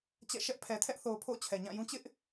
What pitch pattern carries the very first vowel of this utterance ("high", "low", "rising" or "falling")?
falling